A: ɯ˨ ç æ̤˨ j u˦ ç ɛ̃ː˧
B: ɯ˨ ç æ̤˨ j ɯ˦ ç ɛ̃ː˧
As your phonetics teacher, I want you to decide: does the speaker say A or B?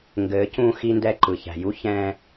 A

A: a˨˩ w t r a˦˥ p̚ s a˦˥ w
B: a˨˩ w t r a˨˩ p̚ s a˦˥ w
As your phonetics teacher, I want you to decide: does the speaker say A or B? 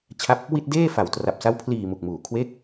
B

